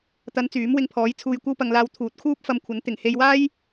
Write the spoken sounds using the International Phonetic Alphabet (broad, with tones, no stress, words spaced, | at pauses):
t̪ɐ˨˧n t͡syː˨˥mwɪ˧ŋpʰɔː˨˥j t͡sʰuː˧jkʷɐ˥wpɐ˧ŋlaː˧w t̪ʰuː˨˥t̚kʰuː˥p̚fɐ˧mkʷʰɐ˨˥n t̪ɪ˨˩ŋhe˧j waː˥j